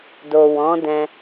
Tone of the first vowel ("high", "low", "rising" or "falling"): low